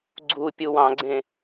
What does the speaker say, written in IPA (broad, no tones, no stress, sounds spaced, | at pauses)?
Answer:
ɡ͡ǀ u pʲ u w ɑ̃ ɡ͡ǀ ẽ